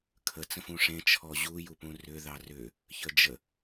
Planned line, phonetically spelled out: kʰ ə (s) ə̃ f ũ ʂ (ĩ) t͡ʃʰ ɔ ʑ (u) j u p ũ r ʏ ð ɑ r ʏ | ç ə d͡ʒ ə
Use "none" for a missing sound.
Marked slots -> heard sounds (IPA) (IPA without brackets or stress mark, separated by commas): t͡s, ẽ, u